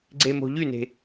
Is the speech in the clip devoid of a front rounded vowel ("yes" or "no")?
no